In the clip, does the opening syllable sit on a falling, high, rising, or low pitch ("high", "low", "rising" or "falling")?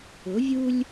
rising